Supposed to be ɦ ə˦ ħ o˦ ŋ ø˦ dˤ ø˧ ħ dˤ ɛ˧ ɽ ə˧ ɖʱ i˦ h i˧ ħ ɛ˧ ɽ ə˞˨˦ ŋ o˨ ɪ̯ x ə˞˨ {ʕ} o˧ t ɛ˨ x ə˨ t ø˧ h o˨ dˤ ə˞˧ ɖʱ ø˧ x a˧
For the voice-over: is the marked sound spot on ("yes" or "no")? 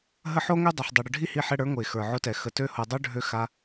yes